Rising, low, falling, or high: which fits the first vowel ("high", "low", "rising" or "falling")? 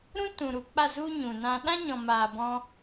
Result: high